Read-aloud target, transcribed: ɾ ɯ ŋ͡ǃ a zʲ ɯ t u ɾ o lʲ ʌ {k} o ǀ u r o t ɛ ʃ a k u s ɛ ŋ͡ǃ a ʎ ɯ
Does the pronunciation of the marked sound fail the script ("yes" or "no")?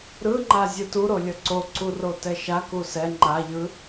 yes